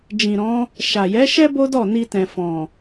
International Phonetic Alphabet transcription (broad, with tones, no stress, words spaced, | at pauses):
d͡ʒĩ˨ɾɔ̃˨˦ | ʃa˨ jɛ˨˦ʃɛ˦ bo˦dɔ˦˨ni˧tɛ̃˨ fɔ̃˨